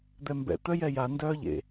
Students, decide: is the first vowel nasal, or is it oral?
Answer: oral